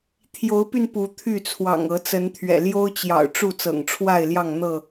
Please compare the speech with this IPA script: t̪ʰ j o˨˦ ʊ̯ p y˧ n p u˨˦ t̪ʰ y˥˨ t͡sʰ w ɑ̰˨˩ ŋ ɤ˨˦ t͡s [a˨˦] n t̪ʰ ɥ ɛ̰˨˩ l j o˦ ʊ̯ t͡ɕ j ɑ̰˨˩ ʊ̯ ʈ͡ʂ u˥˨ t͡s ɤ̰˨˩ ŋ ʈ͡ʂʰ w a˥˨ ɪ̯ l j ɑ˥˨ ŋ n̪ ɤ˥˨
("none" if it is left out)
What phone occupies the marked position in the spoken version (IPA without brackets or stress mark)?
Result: ə˨˦